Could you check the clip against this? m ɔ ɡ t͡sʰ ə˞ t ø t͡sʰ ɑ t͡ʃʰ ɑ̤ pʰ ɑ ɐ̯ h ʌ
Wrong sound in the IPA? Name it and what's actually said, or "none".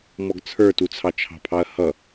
ø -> u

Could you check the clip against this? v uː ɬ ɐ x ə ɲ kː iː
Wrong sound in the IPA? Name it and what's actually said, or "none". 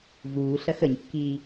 none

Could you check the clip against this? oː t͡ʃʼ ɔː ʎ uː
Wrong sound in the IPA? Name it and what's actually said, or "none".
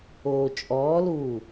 ʎ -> l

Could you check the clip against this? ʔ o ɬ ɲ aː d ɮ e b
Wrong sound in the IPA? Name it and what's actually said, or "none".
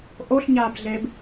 d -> b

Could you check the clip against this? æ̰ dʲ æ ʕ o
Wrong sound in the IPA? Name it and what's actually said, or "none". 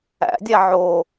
none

